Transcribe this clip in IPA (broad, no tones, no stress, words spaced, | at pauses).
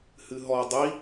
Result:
hɨɦɔ dˤi